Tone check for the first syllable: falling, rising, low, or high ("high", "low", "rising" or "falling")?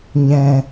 low